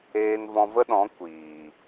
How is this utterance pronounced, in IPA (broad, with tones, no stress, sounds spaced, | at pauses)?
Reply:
eː˧ n v ɔ̃˧ v ə˦ ɗ ɔ̃˨˦ kʷ iː˨